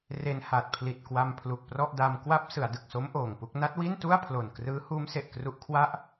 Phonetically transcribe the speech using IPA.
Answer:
r e˧ n h a˨˩ t̚ pʰ l i˨˩ t̚ k w a˧ m pʰ l u˨˩ k̚ p r ɔ˥˩ ʔ d a˧ m k w a˦˥ p̚ s ɯ˩˦ a̯ d ɯ˨˩ k̚ s o˦˥ m ʔ oː˨˩ ŋ p u˥˩ k̚ n a˦˥ t̚ w i˥˩ n t u˥˩ a̯ pʰ l o˨˩ n k r ɯː˦˥ h uː˦˥ m s e˨˩ ʔ k r u˦˥ ʔ kʰ w a˥˩ ʔ

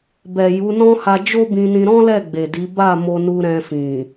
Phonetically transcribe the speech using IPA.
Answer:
b ɛ˨ j u˨˦ n ɔ̃˦ h a˧ d͡ʒ o˦ b ĩ˧ n ĩ˧ ɾ ɔ̃˦ l ɛ˦˨ ɡ͡b e˨ d i˨˦ b a˦˨ m o˧ n u˧ ɾ ɛ̃˧ f ĩ˨

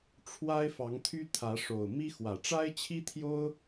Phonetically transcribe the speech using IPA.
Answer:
ʈ͡ʂʰ w a˦ ɪ̯ f ɑ˨˦ ŋ t̪ʰ y˦ t̪ʰ ä˨˦ ʂ o˨˩ ʊ̯ m i˦ x w ä˨˩ ʈ͡ʂ a˦ ɪ̯ t͡ɕʰ i˦ t̪ʰ j o˦ ʊ̯

